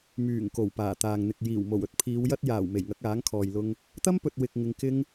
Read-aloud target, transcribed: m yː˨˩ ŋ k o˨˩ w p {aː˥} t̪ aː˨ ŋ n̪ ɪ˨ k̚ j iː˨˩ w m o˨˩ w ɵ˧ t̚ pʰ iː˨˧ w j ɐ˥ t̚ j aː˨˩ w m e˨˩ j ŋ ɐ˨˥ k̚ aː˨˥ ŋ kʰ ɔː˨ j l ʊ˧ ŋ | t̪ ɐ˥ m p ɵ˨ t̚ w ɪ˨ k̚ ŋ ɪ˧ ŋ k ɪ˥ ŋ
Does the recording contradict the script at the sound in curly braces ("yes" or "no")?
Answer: yes